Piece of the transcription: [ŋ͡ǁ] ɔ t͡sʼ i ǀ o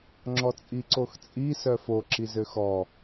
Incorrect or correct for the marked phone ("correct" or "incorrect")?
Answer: correct